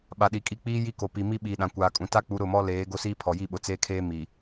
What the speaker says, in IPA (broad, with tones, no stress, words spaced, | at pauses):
ɓa˨ɗi˨kʼi˦k͡piː˦ ji˦ ko˨pi˨ mi˦ɓiː˨ɗã˨ kʷaː˨kʼũ˨ta˦k͡pu˨˦ ɾʊ˦˨mɔ˦leː˨˦ ɡo˦siː˦ pʰɔ˨ji˦˨ɓʊ˨ t͡seː˦kʰeː˦ mi˨